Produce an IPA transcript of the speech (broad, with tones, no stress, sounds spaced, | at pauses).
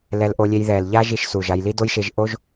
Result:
l ɛ˧ l ʔ o˧ lʲ e˧ j ð ɛ˨ l ʎ a˦ ʒ i˧ ʃ s u˨ ʒ a˧ j l i˦ d o˦ j ʃ e˧ ʒ ʔ o˦ ʒ